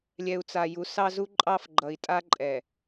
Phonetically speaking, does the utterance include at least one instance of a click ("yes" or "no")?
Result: yes